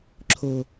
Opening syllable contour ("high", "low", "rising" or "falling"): low